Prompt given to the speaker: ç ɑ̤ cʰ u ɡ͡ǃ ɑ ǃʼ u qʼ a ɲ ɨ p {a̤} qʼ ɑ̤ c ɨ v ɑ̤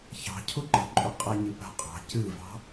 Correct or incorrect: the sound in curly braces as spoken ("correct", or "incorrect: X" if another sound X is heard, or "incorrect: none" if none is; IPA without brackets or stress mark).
correct